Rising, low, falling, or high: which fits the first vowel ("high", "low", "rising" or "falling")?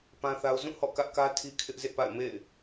high